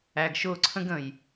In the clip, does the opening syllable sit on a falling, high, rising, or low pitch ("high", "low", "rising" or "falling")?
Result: low